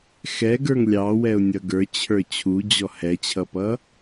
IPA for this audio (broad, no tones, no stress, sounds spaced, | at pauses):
x ɛ ɡ ə˞ ŋ lʲ ɑ w ɛ ʊ̯ nʲ ʌ ɡ ə˞ t͡ɕʰ ə˞ t͡ɕʰ u d͡ʑ ɔ h ɛ t͡ɕʰ ʌ p ʌ